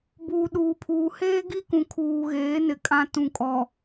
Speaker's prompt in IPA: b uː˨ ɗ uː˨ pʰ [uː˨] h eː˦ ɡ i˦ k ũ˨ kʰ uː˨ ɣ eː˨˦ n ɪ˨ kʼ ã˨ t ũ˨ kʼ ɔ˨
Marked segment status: correct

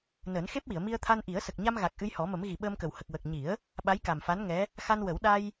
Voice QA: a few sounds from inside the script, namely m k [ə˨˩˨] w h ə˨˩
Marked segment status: incorrect: ə˨˩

